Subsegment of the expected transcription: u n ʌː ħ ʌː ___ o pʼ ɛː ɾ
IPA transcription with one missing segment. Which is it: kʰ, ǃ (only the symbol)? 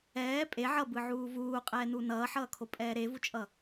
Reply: kʰ